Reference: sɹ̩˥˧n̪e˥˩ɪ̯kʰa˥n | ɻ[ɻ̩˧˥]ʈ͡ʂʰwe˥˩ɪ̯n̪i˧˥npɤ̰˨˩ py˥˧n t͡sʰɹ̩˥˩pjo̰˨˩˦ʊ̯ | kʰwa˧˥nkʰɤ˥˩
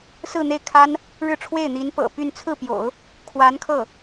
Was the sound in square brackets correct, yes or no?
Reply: no